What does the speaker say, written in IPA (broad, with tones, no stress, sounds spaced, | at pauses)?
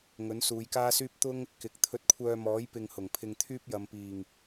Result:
ŋ ɵ˨˥ n s uː˨˧ j k aː˥ s yː˥ p̚ t̪ ʊ˥ ŋ | k ɪ˨˥ k̚ t̪ʰ ɵ˧ t̚ kʷʰ œː˧ m ɔː˨˥ j p ɪ˨ ŋ h ʊ˨˩ ŋ pʰ ɪ˧ ŋ t̪ʰ yː˥ p̚ j ɐ˨˧ m p iː˨˩ ŋ